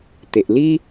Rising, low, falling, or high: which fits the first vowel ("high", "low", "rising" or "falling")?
low